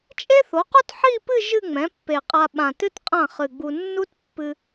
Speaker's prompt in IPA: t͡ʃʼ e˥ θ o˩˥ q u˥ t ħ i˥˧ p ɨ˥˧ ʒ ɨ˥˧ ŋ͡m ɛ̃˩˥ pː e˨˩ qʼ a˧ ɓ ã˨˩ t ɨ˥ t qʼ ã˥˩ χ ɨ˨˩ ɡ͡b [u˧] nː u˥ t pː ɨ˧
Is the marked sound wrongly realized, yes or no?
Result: no